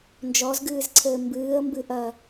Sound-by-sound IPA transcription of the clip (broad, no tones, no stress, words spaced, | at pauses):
nd͡ʒɔzɡɨːzǀʰɘː mbɨːə̯mbɨʔɐ